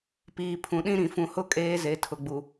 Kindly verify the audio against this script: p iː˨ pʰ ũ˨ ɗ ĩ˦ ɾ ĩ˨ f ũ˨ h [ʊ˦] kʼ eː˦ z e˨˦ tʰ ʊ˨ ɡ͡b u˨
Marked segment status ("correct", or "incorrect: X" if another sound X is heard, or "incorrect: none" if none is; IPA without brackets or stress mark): correct